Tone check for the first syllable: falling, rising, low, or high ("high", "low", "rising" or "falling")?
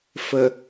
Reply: low